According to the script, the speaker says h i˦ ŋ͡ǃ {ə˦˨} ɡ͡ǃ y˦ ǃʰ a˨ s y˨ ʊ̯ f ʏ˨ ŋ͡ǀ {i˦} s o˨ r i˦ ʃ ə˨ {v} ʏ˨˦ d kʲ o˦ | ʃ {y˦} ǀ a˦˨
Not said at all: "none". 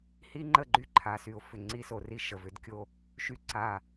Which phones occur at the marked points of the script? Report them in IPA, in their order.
ə˦˨, i˦, v, y˦

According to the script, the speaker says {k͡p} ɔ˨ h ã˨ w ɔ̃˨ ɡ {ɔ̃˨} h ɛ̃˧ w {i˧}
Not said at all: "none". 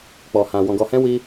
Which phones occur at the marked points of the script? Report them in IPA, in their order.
k͡p, ɔ˨, i˧

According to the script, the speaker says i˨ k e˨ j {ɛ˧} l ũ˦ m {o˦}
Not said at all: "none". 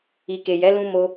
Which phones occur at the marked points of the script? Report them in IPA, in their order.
ɛ˨˦, o˦

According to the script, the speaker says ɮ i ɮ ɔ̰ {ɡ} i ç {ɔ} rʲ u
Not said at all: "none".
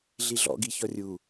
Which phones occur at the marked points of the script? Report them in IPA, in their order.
ɡ, ɔ

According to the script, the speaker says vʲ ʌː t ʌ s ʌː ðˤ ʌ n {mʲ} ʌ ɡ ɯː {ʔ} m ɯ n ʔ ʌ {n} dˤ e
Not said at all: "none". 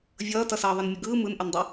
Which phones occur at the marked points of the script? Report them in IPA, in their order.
mʲ, none, n

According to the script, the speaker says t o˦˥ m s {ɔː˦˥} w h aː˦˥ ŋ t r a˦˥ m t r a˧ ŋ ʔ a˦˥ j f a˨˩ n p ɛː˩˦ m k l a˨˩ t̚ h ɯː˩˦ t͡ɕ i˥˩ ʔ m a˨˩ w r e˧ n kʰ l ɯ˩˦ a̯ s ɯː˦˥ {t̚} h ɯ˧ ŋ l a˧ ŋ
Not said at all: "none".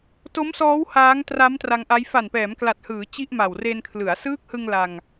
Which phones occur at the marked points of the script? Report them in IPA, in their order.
ɔː˦˥, k̚

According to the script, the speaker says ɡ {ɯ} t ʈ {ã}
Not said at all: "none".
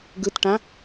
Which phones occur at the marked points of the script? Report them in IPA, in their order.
ɯ, ã

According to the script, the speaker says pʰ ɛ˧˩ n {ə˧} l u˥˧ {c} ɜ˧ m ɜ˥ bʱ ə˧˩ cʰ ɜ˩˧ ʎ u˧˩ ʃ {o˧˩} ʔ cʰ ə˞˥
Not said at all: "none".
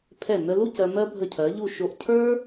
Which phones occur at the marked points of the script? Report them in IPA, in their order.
ə˧, c, o˧˩

